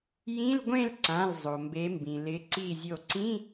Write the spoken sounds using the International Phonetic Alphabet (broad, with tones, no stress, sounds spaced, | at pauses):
j ĩ˧˥˧ l ɡʷ ẽ˥˨ l ǀ ã˩˧˩ l zˤ o˩ m b e˩˧ m b ĩ˩ l ɪ˩˧ ǀ i˧˩ zʲ o˧˩ ǀ ĩ˧˥˧